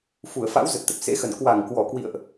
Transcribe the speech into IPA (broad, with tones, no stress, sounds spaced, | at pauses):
f u˧˩ ə̯ f a̰˧˥ w z ə˨˩ t̚ t̪ ə˨˩ p̚ s ḛ˧˥ x ə˧˩ n k w a˧˩ ŋ k w ɔ˧˩ k w ḭ˧˨ ə̯ ʔ